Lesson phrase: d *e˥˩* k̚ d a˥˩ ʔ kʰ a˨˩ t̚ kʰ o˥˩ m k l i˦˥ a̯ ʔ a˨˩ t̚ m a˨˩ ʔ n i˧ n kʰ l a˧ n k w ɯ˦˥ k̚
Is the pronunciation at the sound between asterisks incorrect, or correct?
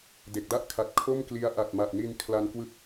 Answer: incorrect